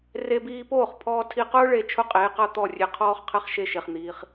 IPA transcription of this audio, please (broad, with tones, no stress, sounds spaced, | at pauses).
r e˧ b iː˧ p oː˦˨ χ pʰ ɔː˧ tʰ i˧ q ʊː˦ ɭ e˦˨ t͡ʃʰ ʊ˦ qʼ eː˨˦ q a˦ t̪ ɔ˦˨ rʲ e˧ qʰ ɔː˦ χ qʰ ɛ˦ χ ʃ e˦ ʃ e˧ χ n̪ iː˧ χ